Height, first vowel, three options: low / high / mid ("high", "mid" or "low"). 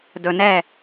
mid